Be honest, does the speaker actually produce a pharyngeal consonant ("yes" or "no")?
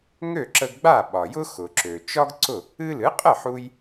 yes